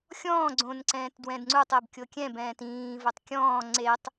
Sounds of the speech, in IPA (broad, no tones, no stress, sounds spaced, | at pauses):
xʲ ɔ̃ː ɡ͡ǀ õ n ǀ ɛ̃ː t d w ɛ̃ d ŋ͡ǀ u tˤ e b kʲ o kʲ ɛ̃ b ɛ̃ː t ĩː v o tˤ kʲ ɔ̃ː ŋ͡ǀ e tˤ